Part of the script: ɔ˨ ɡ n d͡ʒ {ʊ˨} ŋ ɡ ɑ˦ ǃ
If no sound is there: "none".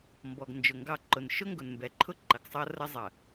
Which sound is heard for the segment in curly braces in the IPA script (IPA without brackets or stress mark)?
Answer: ʊ˨